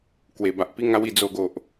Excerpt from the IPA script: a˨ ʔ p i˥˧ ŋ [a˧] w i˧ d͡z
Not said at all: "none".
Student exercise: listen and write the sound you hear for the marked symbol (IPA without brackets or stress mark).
a˦